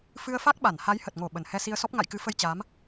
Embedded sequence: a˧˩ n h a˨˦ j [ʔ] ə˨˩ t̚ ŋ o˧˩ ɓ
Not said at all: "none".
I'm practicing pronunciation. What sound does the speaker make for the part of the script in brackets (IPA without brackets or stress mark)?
h